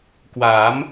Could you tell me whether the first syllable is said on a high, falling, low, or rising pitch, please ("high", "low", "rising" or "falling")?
rising